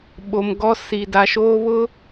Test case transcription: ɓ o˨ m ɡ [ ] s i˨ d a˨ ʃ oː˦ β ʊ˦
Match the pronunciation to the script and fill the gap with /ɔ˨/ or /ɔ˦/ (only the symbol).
ɔ˦